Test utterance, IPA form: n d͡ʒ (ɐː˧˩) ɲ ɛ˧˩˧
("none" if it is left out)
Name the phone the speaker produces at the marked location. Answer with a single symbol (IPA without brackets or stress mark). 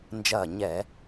ɐː˧˩